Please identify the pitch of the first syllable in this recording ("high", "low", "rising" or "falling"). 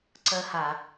high